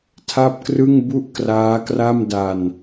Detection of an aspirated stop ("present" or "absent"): present